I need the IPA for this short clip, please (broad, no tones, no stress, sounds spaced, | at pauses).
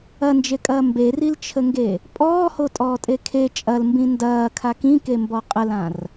ɐ n d͡ʒ e kʼ ɐː m b e r i l t͡ʃʰ ə ŋ ɡ e | pʼ ɔː h o tʼ ɔː tʼ e kʰ e t͡ʃʼ ɐ l m b ĩ n d ɐː kʰ a k ĩ k e m b ɔ qʼ ə l ã r